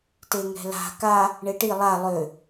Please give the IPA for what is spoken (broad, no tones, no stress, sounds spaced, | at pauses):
t e ŋ ɛ̤ l a̤ k a | ɳ e ʈ i lˠ a lˠ ø